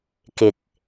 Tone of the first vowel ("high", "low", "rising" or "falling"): low